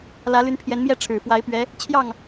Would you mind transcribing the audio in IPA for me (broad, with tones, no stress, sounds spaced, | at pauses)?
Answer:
l ä˧˥ l y˧˥ n pʰ j ɛ˧˥ n m j ɛ˥˩ ʈ͡ʂʰ ɻ̩˨˩ f w a˧˥ ɪ̯ p ɥ ɛ˧˥ | t͡ɕʰ j ɑ˥˩ ŋ